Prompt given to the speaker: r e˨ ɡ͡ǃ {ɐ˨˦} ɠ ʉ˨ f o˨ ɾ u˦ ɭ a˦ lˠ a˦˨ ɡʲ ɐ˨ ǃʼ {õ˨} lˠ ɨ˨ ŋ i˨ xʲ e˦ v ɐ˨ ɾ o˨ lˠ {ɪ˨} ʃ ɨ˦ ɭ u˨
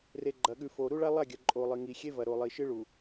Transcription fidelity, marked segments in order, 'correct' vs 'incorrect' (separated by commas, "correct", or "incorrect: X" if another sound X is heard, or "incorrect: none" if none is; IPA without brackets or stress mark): incorrect: ɐ˨, incorrect: o˨, incorrect: i˨